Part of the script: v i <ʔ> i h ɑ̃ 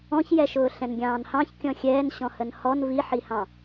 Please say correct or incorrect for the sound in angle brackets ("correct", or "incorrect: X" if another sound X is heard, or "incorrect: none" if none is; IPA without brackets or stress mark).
incorrect: ħ